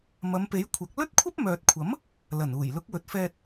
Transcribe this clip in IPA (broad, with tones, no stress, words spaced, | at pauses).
mɐ˨˧mpe˨˥jkʷʰɐ˨˥k̚ lɵ˥t̚kʷʰɐ˥p̚mœː˨t̚kʷʰɐ˨˥m | lɐ˨˩nuː˨˩jlʊ˨˥k̚ wɵ˨t̚fɛː˧t̚